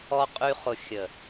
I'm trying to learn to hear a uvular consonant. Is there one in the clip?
yes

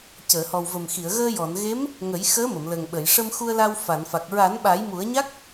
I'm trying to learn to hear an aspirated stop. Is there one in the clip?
no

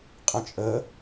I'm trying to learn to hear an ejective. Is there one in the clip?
yes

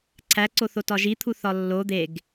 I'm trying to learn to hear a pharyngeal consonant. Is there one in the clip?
no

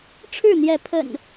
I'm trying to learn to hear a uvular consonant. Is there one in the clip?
no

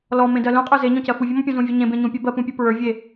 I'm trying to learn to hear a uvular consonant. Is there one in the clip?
yes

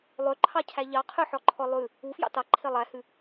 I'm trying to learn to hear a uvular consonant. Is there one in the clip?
yes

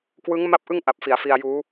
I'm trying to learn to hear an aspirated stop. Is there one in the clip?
no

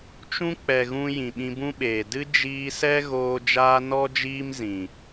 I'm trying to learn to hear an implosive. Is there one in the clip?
yes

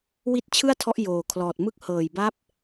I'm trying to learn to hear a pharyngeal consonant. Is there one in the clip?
no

